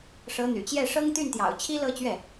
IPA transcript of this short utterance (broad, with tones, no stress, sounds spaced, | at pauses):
ʂ ɤ˧˥ n̪ y̰˨˩ t͡ɕ j ɛ˥˩ ʂ ɤ˥ ŋ t̪ y˥˩ n t̪ j ɑ̰˨˩ ʊ̯ t͡ɕʰ i˥ l ɤ˥˧ t͡ɕ ɥ ɛ˥˩